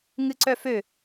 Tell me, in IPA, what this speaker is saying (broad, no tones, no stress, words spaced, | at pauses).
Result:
ŋɨǀœfø